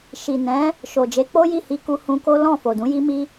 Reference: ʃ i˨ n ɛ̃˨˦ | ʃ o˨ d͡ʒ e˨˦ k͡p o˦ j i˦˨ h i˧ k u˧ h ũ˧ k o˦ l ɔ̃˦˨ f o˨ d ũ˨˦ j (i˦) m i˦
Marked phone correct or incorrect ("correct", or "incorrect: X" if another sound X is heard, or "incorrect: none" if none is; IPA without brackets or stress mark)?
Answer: correct